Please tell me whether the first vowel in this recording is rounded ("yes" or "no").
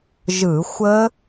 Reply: no